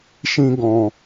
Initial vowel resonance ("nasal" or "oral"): nasal